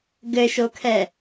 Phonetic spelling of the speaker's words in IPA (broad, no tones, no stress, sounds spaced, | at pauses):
ɡ ɘ ʃ o kʰ ɛ